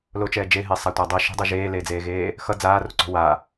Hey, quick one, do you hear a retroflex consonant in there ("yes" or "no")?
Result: no